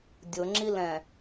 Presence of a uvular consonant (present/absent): absent